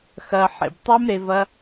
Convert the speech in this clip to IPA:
x ɐː˨ ħ ḛ˨ b tˤ a˦ m ɾ e˧ v ɐ˦

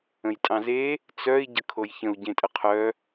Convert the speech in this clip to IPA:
ə̃ j tʼ ɑ̃ z e | t͡s œ i̯ ɟ ə kʰ o j ç ə̃ u̯ ɟ ẽ tʼ ə qʰ œ

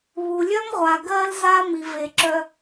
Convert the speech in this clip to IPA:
β u˨ lʲ œ˥ m ʁʷ a˨ ɡ ɜ˦ l z a˦ m i˨ v e˨ ǁ œ˦

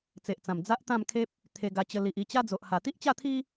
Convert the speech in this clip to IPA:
t͡s e˨ ʔ t͡s ã˨˩ m d͡z a˦ ʔ t̪ ã˥˧ m kʰ e˦ p̚ | t̪ʰ e˧ ɡ a˧ t͡ɕ ə˧ l i˨ ʔ i˧ t͡ɕ a˦ d͡z o˨ ʔ h a˨˩ t̪ i˦ ʔ t͡ɕ a˥˧ t̪ʰ i˦

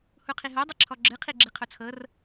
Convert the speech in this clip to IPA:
h u qʰ i ɦ o dˤ i ǁʰ ɔ ɡ͡ǁ ɨ qʰ i ɡ͡ǁ i qʰ o t͡sʰ ɤ r

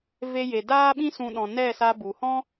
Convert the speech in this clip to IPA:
v e˧ j e˨ d aː˦ ɓ ĩ˦ s ũ˦ ɗ ɔ̃˧ n ɛ˦˨ s a˧ b u˨ h ɔ̃˦

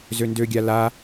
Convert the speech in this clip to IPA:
z ø n d ø ɡʲ a l a

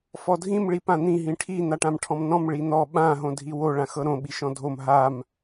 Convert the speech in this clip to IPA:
f ɔ dʱ ĩ m ɭ i p ã n̪ ĩ ɦ ĩ ʈʰ i n̪ a ʈ ã m ʈʰ ɔ̃ m n ɔ̃ m ɭ i n̪ ɔ ɓ ã ɦ õ dʱ i w o ɭ ã x ɤ ɾ õ ɓ i ʃ ɔ̃ dʱ o m ɦ a m

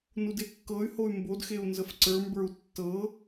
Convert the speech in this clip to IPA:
n u d e kː ɤ y̯ h o y̯ m b o d x e u̯ n z ə f ǀ ə˞ m b ə˞ u̯ tː ɤ

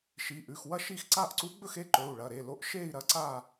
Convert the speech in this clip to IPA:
ʃ i˩˧˩ ʔ ʉ˩˧˩ x w ɐ˥˧ ʃ i˥˧ x ǀ a˥˧ ʔ ǀ u˧˥ ɡ͡b ɵ˥˧ x e˧˥ ǃ ɵ˩˧˩ u̯ ɭ ɐ˩˧˩ ɾ e˩˧˩ l o˧˥ ʔ ʃ e˥˧ i̯ ɾ ɐ˧˥ ǀ a˥˧

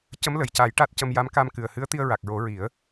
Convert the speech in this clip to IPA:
c ə˧˥ m l ə˨˩ j c a˨˩˦ j ʈ a˦˥ t̚ c ə˧ m j a˧˥ m k aː˧ m k ɨ˨˩ ə̯ h ɨ˧˥ ə̯ t̪ i˧ ə̯ ɹ a˨˩ k̚ ɹ o˨˩˦ ɹ i˨˩˦ ə̯

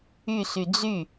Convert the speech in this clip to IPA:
y s y d͡z y

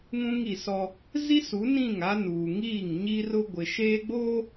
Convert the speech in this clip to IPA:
ŋ ũ˦ ŋ i˨ s ɔ˦ | z i˦ s u˨˦ n ĩ˦˨ ŋ a˦ n uː˨ ŋ iː˦˨ ŋ ɲ i˦ r ʊ˦ ɡʷ ɪ˨ ʃ eː˦ ɡ͡b oː˦

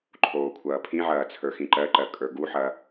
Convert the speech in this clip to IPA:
ǃʰ oː kʷʰ ɐː pʰ ĩ ʕ ɐː t͡sʰ ə˞ x ĩ ǃ ɜ ǃ ɜ kʼ ə˞ ɡ u ħ ɐ

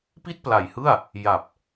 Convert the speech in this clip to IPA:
p i˥˩ t̚ p l a˨˩ j h ɯ˥˩ a̯ | j a˨˩ p̚

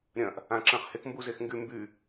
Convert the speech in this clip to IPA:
ɾʲ ɐ̃ ʔ | ã ǁ ɐ̃ χ h e k m b u z e x ŋ ɡ y m b y

